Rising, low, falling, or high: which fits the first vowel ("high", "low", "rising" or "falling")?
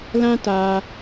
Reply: high